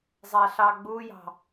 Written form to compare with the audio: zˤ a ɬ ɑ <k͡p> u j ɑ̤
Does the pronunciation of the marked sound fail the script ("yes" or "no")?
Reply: yes